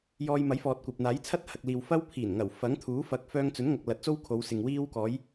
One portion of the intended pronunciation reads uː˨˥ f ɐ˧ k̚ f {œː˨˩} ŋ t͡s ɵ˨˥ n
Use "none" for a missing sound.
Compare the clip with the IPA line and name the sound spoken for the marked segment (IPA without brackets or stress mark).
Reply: œː˧